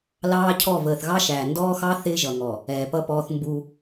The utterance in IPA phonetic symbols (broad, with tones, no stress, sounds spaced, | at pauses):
l ɑː˦ cʰ ɔ˦˨ v əː˨ θ ɣ ɑ˦ ʃ æː˨ n d ɔː˦ x ɑ˦ θ ɪː˦ ʒ ʌ˨ ŋ ɔ˨ | ɛː˨ p ʌ˦ p ɔː˦ θ m b u˦